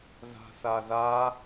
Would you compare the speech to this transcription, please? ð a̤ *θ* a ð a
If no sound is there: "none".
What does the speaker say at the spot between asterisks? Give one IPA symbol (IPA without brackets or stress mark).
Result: θ